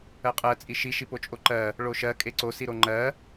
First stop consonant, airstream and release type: ejective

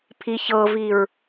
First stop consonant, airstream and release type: aspirated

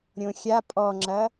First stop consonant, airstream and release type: ejective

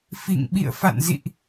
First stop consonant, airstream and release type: implosive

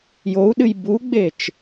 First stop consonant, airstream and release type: implosive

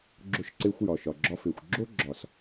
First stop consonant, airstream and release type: click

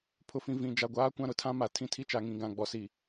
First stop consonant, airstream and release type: aspirated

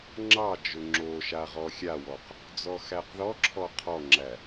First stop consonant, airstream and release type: click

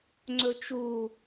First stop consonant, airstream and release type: click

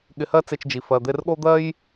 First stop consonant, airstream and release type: implosive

